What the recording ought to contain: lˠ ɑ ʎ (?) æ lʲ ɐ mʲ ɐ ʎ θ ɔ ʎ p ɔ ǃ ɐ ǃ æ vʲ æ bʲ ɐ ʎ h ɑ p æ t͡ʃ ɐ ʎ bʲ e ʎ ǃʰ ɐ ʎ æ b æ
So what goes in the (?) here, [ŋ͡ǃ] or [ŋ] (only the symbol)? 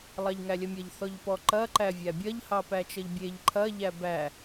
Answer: ŋ